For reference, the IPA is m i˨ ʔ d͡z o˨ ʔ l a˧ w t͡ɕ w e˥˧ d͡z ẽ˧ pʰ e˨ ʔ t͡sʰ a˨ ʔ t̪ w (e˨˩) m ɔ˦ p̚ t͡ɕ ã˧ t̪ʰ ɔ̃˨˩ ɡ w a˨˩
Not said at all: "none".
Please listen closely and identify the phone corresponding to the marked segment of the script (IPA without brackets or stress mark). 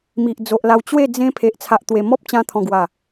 e˨˩